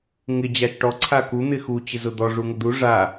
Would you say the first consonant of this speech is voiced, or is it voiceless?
voiced